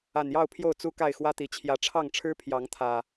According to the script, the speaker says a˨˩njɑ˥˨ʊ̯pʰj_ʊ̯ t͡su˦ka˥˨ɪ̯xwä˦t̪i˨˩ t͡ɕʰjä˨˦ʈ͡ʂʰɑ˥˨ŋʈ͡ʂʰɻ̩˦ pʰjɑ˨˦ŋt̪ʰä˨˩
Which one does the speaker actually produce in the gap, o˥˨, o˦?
o˥˨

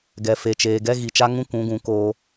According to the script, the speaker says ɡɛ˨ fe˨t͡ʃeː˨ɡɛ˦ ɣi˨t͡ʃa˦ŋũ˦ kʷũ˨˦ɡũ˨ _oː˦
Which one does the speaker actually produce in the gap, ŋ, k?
k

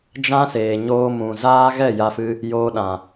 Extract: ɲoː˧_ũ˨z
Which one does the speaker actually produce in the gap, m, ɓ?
m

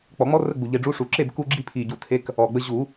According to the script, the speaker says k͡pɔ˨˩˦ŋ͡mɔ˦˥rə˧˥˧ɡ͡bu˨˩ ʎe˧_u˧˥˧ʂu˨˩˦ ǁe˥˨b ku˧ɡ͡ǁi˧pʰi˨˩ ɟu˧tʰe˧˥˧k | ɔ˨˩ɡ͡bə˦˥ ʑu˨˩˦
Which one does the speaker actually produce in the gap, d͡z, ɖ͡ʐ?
ɖ͡ʐ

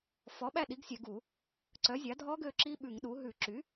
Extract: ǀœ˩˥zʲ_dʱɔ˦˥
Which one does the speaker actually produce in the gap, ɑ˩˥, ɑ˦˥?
ɑ˩˥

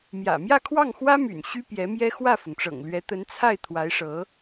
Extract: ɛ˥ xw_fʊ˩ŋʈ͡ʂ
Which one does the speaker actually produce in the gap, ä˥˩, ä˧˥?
ä˥˩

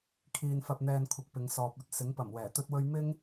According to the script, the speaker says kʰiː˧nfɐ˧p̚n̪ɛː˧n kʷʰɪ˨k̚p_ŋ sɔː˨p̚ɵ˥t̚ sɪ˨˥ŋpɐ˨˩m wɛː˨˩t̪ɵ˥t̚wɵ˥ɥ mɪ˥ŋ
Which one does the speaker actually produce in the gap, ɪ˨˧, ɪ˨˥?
ɪ˨˧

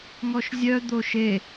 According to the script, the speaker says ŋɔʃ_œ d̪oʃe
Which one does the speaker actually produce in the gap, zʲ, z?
zʲ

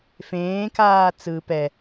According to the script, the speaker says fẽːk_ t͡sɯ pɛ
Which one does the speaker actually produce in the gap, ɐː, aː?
aː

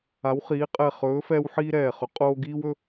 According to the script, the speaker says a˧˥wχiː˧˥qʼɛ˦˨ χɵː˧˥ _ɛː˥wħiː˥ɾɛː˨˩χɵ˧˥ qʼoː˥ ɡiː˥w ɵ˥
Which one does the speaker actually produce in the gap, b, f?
f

